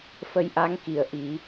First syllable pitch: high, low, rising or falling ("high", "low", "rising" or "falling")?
rising